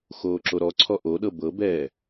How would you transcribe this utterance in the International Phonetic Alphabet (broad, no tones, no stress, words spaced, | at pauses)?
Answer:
xoːǁoɾɔǀʰɔ ʔoɗɤ bɤbɛː